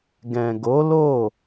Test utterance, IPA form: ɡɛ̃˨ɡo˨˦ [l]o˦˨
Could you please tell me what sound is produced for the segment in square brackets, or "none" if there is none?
l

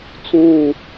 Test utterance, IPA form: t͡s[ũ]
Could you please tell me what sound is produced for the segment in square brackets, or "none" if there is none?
ũ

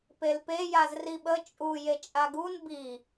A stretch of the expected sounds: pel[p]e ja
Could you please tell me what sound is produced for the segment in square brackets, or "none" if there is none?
p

